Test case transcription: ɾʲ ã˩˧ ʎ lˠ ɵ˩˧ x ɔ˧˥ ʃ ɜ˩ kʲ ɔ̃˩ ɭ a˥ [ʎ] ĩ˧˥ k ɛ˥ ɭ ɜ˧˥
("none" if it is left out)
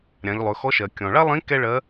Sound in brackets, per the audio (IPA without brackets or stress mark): lˠ